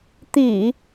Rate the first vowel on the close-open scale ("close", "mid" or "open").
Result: close